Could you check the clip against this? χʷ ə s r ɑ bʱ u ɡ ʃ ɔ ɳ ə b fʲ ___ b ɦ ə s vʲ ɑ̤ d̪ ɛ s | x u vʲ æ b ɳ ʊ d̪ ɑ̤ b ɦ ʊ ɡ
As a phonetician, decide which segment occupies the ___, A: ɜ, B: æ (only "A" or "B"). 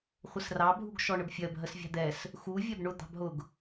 A